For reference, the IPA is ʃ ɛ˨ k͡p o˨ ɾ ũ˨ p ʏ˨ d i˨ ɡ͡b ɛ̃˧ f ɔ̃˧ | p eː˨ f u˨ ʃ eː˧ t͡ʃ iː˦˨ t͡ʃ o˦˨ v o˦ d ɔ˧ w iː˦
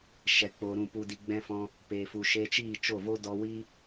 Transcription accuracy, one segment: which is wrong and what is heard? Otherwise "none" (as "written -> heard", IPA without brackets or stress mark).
ʏ˨ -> u˨